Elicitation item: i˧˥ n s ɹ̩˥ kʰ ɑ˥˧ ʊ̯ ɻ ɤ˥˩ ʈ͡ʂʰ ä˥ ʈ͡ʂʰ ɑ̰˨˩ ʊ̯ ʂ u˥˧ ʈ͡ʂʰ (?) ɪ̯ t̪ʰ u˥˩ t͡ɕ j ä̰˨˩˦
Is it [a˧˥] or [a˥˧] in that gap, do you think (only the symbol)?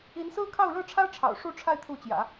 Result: a˥˧